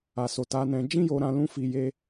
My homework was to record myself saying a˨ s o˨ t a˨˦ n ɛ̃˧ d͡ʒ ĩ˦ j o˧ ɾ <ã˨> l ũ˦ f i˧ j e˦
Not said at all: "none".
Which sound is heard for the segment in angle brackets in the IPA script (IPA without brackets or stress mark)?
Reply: ã˧